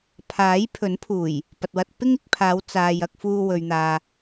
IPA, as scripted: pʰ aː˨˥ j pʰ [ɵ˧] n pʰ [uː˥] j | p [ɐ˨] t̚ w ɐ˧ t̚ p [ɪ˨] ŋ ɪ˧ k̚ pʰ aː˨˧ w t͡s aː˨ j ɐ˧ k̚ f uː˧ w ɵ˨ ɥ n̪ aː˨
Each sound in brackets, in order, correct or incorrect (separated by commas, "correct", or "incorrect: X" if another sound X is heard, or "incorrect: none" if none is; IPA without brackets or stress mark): incorrect: ɵ˨˥, incorrect: uː˨˩, correct, incorrect: ɪ˥